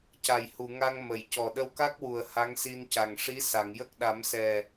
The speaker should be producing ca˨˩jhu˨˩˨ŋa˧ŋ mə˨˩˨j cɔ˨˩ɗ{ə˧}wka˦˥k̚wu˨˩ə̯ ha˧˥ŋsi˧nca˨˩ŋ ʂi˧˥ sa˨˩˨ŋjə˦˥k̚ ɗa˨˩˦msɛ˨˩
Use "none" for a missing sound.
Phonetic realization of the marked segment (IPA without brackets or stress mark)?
ə˧